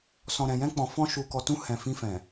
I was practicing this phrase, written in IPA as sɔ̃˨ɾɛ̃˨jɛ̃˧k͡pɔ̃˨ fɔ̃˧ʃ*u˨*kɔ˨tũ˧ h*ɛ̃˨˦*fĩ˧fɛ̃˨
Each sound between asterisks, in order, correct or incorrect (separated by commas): correct, incorrect